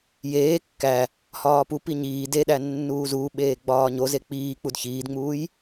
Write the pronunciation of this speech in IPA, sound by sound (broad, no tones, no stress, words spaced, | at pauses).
jeː kːæ | hɒːpupi ɲiː deɗæ nːuːzuːɓeː ɡ͡bɒːɲoze k͡piːk͡pud çiːdŋ͡muːj